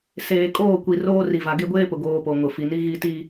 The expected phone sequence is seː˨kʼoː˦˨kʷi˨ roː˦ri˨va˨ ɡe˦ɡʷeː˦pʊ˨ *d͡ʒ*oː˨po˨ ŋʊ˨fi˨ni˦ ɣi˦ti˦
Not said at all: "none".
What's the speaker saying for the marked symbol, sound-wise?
ɡ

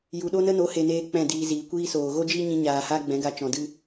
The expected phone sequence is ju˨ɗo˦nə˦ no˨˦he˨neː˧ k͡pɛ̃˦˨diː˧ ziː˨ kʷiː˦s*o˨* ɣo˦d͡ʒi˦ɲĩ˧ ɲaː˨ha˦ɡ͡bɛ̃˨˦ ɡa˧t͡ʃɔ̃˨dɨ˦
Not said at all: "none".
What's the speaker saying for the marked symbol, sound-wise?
oː˨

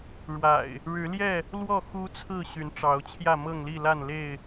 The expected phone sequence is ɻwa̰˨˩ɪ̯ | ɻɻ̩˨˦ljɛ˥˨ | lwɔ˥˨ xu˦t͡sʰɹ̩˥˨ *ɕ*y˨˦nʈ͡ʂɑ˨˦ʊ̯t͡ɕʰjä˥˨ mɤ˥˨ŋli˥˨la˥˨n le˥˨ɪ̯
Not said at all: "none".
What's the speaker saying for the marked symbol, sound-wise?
ɕ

